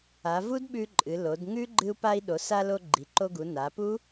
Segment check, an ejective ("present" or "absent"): present